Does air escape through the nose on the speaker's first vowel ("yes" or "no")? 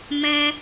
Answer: yes